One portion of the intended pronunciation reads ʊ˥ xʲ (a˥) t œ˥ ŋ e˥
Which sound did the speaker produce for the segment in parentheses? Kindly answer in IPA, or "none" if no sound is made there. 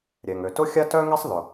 a˥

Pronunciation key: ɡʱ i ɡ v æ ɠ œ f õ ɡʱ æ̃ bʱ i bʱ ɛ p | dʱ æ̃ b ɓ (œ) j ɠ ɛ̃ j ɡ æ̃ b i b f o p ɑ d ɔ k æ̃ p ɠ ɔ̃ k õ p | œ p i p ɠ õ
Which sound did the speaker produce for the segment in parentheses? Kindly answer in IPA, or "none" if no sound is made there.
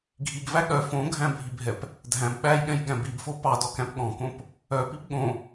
æ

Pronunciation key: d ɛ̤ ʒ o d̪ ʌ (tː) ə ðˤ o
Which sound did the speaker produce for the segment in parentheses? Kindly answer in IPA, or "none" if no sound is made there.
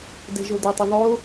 tˤ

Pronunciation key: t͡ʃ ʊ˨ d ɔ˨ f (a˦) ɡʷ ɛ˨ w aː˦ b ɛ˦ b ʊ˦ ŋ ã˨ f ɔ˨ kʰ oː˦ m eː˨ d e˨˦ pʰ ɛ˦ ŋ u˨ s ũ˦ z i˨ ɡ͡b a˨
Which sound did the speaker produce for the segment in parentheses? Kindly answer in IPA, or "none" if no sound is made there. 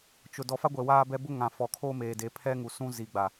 a˦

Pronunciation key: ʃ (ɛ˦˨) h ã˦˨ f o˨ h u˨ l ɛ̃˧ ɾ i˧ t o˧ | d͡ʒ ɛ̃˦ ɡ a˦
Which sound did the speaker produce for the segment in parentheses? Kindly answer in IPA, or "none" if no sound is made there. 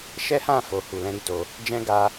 ɛ˦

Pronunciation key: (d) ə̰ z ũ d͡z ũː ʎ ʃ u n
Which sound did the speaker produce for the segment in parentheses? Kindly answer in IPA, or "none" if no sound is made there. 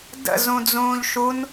d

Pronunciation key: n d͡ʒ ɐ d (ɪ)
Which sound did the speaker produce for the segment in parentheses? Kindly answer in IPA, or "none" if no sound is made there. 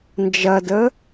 ə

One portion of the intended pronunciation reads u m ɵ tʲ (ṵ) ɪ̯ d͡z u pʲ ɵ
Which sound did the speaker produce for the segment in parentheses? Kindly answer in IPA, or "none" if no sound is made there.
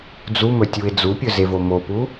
u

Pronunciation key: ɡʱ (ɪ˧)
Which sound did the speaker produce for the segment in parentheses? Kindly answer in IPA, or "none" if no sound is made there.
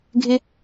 ɪ˧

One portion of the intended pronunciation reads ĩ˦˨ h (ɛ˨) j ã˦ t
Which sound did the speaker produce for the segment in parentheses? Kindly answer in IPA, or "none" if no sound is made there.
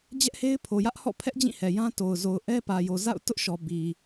ɛ˨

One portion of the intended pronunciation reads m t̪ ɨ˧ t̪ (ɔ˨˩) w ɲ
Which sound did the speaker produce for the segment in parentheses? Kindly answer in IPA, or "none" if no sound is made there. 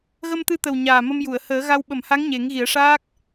ə˨˩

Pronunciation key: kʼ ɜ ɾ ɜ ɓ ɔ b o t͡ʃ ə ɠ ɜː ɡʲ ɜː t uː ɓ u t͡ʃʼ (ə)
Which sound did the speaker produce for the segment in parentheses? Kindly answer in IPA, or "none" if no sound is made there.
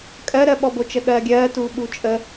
ə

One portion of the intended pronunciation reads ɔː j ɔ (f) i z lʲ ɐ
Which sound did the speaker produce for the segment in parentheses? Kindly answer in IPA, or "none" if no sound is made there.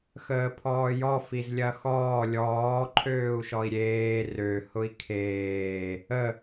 f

